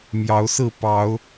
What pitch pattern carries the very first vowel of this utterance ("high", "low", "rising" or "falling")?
rising